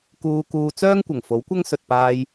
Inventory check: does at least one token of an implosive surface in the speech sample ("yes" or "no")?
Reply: no